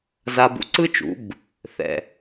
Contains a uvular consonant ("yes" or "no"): no